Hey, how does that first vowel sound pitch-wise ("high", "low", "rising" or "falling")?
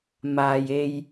low